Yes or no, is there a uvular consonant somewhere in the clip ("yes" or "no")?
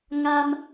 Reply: no